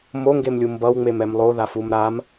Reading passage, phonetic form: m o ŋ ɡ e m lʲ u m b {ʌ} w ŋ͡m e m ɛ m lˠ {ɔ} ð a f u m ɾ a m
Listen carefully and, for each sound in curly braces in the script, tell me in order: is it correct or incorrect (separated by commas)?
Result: correct, incorrect